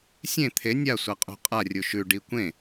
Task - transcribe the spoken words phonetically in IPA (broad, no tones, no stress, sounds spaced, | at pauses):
sʲ ẽ t̪ʰ e nʲ a sʷ a qʼ ṳ qʼ a rʲ u ʃ ʉ ɖ i kʷ ẽ